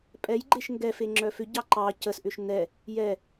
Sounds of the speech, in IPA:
pʼ ɛ j ɡ͡ǃ e ʃ ŋ ɡ ɛ f e ŋ͡ǁ œ f ʏ ɟ ɑ ǃ ɑ c ə s ʔ ʏ ʃ n ɛ | j ɛ

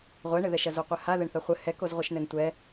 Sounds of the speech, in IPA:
ʁʷ ɛ ɳ ɘ ð ɛ ʃ ɐ z o qʷ ɘ h a ð ɘ ɳ θ ɐ χʷ ɘ h ɛ k o z ʁʷ ɘ ʃ n ɘ n tʷ ɛ

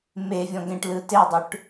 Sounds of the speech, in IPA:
m e vʲ ɔ̃ ɡ ẽ ʈ l ɯ t e dˤ ʉ ʈ

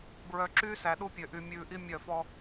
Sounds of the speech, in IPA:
b ɹ œ˨ ǁ yː˦ s æ˨ ɗ u˦ pʲ ø˨ ʔ y˨ mʲ ʉː˨ ʔ i˦ mʲ œ˦˨ f ɔ˦

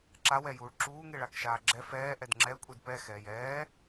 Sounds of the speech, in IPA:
ǁ a w ɛ j uː ɭ ǁ uː ŋ e ɭ a k ʃ aː ɡ͡ǁ ɛ f ɛː ʔ ɛ d ŋ͡ǁ ɛ kʷʼ e d p ɛ x ɛː j ɛː

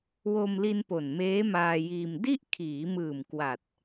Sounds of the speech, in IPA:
w o˧ m l i˧ n p o˨˩ n m eː˦˥ m aː˧ j iː˧ m d i˥˩ ʔ kʰ iː˩˦ m ɯː˨˩ m k w a˨˩ t̚

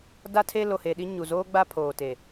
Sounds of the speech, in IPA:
d a˦ tʰ e˦ l o˨ h e˨ ɗ i˦ ɲ u˨ z oː˦ ɡ͡b a˦ pʰ oː˨ t e˨

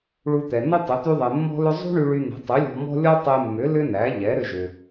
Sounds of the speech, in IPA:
ɭ u˧ t̪ ɛ˩ n ʏ˥ tˤ ʏ˩˥ t̪ y˧ ðˤ e˩ mː ɔ̤˥ l ʏ˥ zˤ ṳ˥ ɳ y˧ ɭ y˧ n̪ ɛ̤˩˥ tˤ y˩˥ lʲ ɔ̤˧ m ɔ̤˥ lʲ ɔ˥ tˤ e˧ mː ʏ˩˥ l ʏ˥ n æ˩˥ ʎ ɛ˩˥ ɾ ʏ˧ ʒ ʏ˩

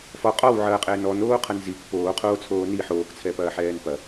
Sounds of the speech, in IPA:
f ɔ qʼ ɔ w ʕ ɐː qʼ ɛː n ɔ n oː qʰ ɐ n z i k p oː qʰ oː t͡sʰ oː n i ħ oː k t͡sʰ ɛ p ɐː ħ ɛː n p ɐ

